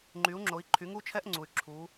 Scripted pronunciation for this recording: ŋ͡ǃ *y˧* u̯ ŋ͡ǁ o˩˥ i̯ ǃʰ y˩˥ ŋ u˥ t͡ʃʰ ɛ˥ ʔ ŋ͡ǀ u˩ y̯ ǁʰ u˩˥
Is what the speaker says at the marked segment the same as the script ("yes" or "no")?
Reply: no